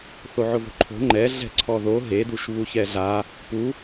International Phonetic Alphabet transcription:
θ o ʕ ʊ v o̤ ǃʰ o̤ ŋ͡ǃ ɛ ɮ ɛ̤ ǀʰ ɔ ð o ɦ e d u ʃ β u ç ɛ ɮ a | p u

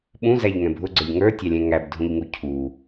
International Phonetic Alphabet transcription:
ɓ ũ z æ ʎ ŋ ɛ̃ bʱ ʊ ɡ͡ǀ ə˞ ʎ ŋ ə˞ tʲ ɑ lʲ ɛ̃ ŋ æ b dʱ ũ ʎ ŋ u cʰ u

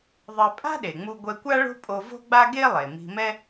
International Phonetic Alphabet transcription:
ðˤ e˧ pʼ a̤˥ ɗ e˩ ŋ͡m u˧ ɡʷ ɛ˧ kʷ a˥ ɭ o̤˥ pʼ o˧ v o̤˥ ɡ͡b a˥ ɡ e˥ lˠ e˩ m i̤˧ m ɛ˥

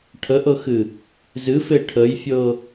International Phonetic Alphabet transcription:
ʈʰ ə ʔ ɤ x ɨ | z ɨ f e ʈʰ ə j fʲ ɤ

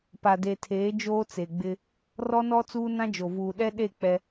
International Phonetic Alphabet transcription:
p a˨ d e˨ tʰ eː˨˦ d͡ʒ oː˦ t͡s e˨ ɡ͡b ɪ˦ | r ɔ˦ n ɔ˦ t͡s uː˦ n ã˦ d͡ʒ o˨ v uː˨ ɗ ɛ˦ ɗ e˦˨ k͡p ɛ˦

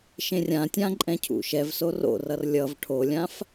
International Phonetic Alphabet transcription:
ʃ ẽ rʲ ã tʲ ã ǃʼ ɛ̃ cʰ ṵ ʃ ɛ v s o r o̰ r ʌ r lʲ ʌ v ʈʰ o lʲ ã f

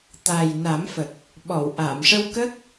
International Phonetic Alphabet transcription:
t̪ a˨˩ j n a˨˩˦ m f ə˨˩ k̚ | ɓ ɔ˨˩˨ w ʔ a˨˩˨ m ʂ ə˧ w k ə˦˥ k̚

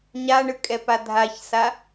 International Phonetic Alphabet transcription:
ɲ a ɳ ɯ kʼ ɛ p a dʱ a ç s a

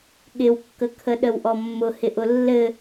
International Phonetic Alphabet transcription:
ɠ ɪ w kː ə kʰ ə ɗ ə w ʔ ɔ mː ʊ h ɪ ʔ ʊ lː ɘ

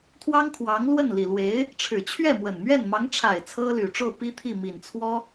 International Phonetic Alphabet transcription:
t̪ʰ w ɑ˥ ŋ kʰ w ɑ˧˥ ŋ l w ə˥˩ n l i˨˩ l w e˧˥ ɪ̯ | ʈ͡ʂʰ ɻ̩˨˩ t͡ɕʰ ɥ ɛ˥˩ m w ə˨˩ n m ɥ ɛ˥˩ n m ɑ˧˥ ŋ ʈ͡ʂʰ a˨˩ ɪ̯ t͡sʰ ɤ˥ l y˨˩ ʈ͡ʂ o˥˩ ʊ̯ p i˥ t̪ʰ i˥˩ m i˨˩ n t͡sʰ w ɔ˥

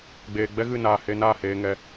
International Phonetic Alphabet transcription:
ɡ͡b eː˨ ɡ͡b ɛ˦ ɣ ɨ˦˨ n aː˨ h e˧ n a˦˨ h eː˨ ŋ ɛ˨

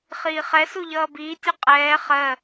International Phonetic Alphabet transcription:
χ iː χ ɛ s u ʎ ʌː b iː tʲ u qʼ ɛː χ ɜ

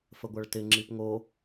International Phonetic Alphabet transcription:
f ə ɡʷ a ɭ t ɪ ŋ͡ǁ i p ŋ o

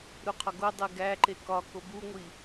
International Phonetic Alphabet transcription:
ɾ u qʰ ɒ ɡ o dˤ e ɡ æ ǃ e k ɒ k o b u ŋʷ i

